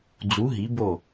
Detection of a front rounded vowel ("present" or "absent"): absent